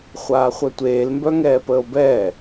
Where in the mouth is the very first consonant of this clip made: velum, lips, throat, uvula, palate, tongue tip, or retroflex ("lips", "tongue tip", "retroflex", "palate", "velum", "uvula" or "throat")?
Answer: uvula